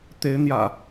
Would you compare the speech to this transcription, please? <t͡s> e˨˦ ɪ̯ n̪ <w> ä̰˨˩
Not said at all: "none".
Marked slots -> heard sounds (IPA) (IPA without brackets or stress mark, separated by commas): t̪, j